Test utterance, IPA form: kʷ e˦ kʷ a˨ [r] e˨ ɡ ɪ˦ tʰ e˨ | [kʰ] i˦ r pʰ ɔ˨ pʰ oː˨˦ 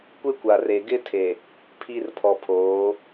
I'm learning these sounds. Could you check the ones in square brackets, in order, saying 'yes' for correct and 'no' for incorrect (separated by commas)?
yes, no